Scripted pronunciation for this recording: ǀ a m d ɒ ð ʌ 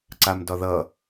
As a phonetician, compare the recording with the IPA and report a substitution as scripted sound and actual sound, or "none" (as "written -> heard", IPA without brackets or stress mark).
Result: none